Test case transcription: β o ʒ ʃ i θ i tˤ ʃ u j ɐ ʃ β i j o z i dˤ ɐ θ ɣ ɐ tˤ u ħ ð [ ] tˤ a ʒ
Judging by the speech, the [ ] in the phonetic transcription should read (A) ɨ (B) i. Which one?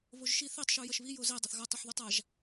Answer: B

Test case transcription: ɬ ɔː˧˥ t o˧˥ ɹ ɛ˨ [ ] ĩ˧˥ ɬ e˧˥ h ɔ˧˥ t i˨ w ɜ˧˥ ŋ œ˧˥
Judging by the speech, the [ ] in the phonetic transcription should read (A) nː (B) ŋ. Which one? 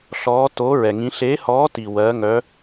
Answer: B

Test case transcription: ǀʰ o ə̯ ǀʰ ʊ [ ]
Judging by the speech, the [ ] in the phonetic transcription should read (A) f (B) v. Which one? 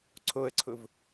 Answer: B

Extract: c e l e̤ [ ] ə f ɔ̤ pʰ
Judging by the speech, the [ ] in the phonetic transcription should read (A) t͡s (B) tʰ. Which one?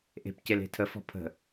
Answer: B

